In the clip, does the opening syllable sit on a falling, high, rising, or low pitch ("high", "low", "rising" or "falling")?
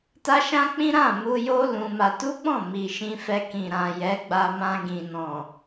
high